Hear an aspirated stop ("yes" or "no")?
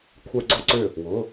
yes